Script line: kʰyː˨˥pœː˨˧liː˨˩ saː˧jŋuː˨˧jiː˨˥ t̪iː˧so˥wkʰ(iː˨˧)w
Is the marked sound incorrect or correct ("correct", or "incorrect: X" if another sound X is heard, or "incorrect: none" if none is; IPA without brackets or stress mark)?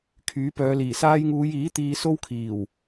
incorrect: iː˨˩